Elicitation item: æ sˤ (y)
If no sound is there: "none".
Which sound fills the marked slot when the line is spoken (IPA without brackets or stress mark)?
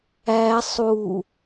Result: u